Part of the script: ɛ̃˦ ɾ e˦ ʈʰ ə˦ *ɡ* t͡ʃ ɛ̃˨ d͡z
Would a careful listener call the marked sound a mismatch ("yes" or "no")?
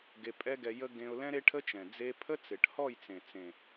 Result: yes